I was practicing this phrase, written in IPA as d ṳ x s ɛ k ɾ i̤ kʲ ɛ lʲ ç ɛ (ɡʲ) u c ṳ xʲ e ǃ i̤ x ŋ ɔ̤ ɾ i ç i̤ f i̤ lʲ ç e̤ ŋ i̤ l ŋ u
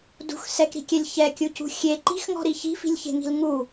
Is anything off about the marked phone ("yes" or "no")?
yes